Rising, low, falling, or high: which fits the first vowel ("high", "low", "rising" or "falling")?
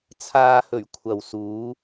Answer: low